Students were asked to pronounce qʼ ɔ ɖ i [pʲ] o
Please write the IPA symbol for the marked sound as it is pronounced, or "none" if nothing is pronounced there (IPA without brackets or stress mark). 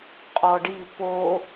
p